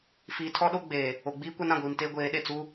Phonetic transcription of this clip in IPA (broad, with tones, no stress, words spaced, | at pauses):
fiː˨tʰɔ˦ ɗo˦ɡ͡beː˨ | o˨ɡ͡biː˦kʷa˦n ã˨ɡʷiː˨mteː˦ ɡʷeː˨˦ɗe˨ t͡su˦